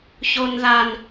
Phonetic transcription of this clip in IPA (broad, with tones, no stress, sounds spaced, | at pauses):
ç o˦ n ð a˦ n